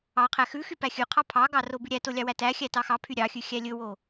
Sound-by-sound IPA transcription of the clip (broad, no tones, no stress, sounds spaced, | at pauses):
ɑ qʰ æ x ʉ x y p æ xʲ ʉ qʰ ɑ pʰ ɑ ɡ ɑ r o b ʉ ɾʲ æ t o lʲ ɑ w æ t æ xʲ æ t ɑ x ɑ pʰ y ɾʲ ɑ xʲ ʉ xʲ æ lʲ ɵ w o